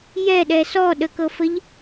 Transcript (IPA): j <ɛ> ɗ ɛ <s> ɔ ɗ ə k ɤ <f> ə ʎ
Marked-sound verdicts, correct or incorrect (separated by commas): correct, correct, correct